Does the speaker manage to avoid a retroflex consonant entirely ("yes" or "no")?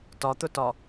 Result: yes